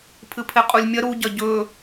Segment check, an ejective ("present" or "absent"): present